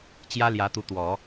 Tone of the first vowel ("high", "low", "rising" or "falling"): high